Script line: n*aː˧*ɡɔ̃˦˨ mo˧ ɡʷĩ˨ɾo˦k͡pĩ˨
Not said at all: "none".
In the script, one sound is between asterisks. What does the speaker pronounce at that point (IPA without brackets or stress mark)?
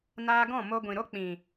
aː˧